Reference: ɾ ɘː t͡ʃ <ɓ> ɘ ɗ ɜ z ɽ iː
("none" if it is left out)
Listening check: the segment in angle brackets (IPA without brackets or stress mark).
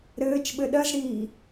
ɓ